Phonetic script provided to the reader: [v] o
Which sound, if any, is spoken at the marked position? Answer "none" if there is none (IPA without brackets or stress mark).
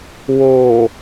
w